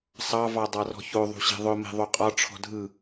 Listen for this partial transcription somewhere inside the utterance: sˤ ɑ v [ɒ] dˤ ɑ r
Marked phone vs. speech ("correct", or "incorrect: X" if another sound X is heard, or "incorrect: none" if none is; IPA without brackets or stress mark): incorrect: ɑ